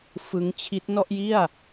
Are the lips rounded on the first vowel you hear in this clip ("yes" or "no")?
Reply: no